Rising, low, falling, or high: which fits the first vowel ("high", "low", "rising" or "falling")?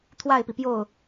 falling